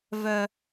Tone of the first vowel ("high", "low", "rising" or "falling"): high